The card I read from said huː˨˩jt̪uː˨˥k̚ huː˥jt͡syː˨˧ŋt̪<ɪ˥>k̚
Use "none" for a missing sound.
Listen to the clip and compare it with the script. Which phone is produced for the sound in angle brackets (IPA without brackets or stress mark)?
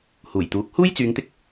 ɪ˧